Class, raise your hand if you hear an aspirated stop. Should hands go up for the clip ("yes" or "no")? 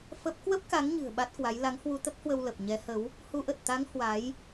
no